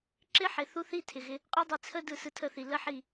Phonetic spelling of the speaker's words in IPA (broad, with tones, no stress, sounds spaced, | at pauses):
ǁ ɪ˦ ħ ɪ˨ θ u˦ θ i˦ tʰ ɪ˨ ɣ ɪ˧ | qʼ ɯ˦ dˤ i˧ t͡sʰ ə˦ d ɯ˦˨ s ɯ˧ tʰ ə˦˨ θ i˨ l ə˦ ħ i˦˨